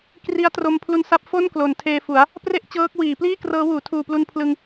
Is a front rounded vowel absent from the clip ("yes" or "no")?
yes